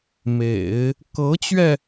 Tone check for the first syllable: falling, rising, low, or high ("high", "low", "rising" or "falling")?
low